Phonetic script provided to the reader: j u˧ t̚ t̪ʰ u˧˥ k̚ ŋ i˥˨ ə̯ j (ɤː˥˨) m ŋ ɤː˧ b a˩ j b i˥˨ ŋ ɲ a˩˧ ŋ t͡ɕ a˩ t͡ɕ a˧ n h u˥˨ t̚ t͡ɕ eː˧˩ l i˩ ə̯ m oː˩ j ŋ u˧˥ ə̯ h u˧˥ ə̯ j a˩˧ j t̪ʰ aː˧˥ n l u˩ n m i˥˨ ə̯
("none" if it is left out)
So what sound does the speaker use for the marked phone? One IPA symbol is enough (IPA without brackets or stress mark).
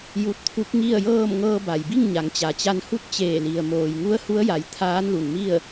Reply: ɤː˥˨